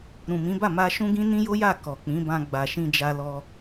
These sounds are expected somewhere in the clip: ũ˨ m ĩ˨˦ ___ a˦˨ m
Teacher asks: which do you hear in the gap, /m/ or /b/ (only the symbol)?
b